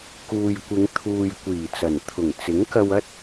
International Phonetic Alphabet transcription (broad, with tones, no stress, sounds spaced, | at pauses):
k uː˨ j kʷ ɪ˨˧ ŋ t̪ʰ uː˨ j kʷ iː˨˩ t͡s ɐ˨˩ n t̪ʰ ʊ˨˩ ŋ t͡s ɪ˨˥ ŋ k ɐ˧ w ɐ˥ t̚